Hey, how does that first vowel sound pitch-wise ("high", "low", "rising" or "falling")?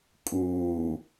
low